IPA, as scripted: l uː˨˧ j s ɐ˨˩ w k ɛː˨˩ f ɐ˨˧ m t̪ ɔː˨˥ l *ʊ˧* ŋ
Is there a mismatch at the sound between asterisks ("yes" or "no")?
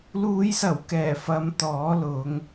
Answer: yes